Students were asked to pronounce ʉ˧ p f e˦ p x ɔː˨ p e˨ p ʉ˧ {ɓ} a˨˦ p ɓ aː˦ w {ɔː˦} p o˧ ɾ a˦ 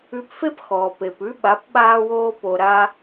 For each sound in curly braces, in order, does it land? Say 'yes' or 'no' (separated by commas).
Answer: yes, no